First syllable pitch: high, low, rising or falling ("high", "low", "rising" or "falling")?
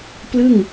falling